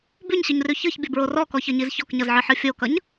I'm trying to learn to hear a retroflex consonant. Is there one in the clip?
no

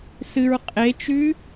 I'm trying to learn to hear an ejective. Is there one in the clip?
yes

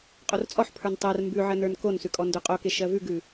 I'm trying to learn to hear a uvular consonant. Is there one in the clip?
yes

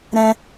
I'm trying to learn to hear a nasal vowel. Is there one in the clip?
yes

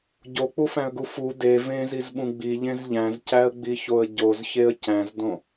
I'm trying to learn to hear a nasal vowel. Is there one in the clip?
yes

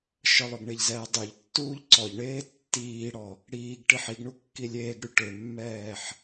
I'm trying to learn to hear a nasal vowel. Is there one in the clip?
no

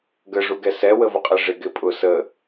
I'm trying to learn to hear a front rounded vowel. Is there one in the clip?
no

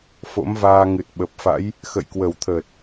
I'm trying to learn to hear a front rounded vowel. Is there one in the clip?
no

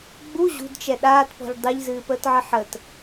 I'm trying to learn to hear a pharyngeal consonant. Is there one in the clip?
yes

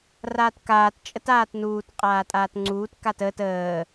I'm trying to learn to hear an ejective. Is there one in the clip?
yes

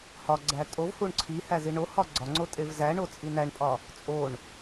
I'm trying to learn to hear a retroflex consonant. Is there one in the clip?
yes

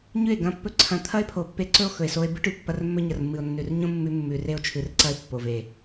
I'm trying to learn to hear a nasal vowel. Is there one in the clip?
yes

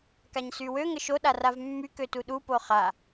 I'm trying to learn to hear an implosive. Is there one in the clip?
yes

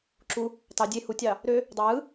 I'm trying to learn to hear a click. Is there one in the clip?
yes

